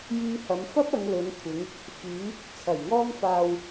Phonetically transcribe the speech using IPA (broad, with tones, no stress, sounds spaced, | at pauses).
j iː˧ h ɐ˨˧ m f ɐ˥ p̚ ɐ˨˧ ŋ l ɵ˨˧ n kʷʰ ɪ˨˧ ŋ | f yː˨˧ | t͡sʰ ɐ˨˩ j ŋ ɔː˧ ŋ f aː˨ w